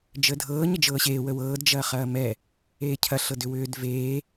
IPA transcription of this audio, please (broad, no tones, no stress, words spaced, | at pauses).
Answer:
d͡ʒəːdʱɤː ɲəd͡ʒɤːɕeː wəwɤːd d͡ʒɐːχɐːmɛ | eːcʰɐ ɬɤdʏwʏːd veː